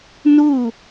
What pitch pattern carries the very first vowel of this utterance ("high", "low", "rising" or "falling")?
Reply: falling